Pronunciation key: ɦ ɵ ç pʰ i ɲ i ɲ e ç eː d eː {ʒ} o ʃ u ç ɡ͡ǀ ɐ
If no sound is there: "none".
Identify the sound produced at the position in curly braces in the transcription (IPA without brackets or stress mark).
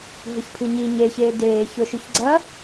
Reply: ç